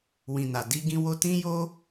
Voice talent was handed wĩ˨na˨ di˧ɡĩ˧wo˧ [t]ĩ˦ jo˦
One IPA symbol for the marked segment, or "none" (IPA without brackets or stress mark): t